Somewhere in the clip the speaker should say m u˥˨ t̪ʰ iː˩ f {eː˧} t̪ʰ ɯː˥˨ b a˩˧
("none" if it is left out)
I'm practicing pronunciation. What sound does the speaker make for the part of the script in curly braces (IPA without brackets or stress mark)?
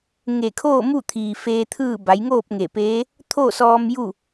eː˧